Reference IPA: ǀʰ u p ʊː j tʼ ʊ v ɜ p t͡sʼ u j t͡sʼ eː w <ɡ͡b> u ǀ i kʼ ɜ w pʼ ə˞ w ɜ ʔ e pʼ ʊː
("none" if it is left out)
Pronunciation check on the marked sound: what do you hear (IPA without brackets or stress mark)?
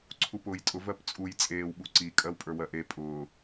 ɓ